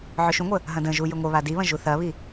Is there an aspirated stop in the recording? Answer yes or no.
no